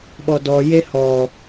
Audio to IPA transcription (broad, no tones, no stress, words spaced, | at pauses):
ɓɔdɔ jehɔ